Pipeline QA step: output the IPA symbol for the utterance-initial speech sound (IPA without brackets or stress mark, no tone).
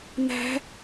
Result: n̪